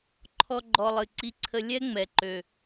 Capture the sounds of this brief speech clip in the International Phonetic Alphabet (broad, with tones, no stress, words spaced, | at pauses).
ǃʰɔ˦ɡ͡ǃɔ˧ lˠɨ˨ǀi˧ǀʰə˧ lʲɛ˦ ŋ͡mɛ˨ǃø˨